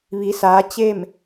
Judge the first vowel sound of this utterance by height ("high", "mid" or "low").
high